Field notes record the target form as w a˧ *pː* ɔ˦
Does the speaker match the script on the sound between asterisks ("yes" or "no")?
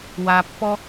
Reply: yes